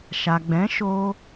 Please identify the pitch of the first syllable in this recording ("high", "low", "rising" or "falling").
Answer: low